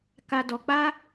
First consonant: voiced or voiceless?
voiceless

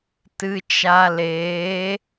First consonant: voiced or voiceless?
voiceless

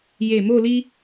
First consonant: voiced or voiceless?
voiced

